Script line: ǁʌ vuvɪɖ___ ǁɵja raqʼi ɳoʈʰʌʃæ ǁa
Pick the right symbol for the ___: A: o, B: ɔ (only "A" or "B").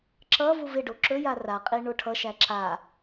A